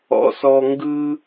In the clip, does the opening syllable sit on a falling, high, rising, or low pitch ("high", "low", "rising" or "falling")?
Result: rising